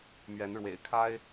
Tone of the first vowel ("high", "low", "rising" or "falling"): rising